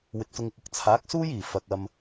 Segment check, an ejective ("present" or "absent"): absent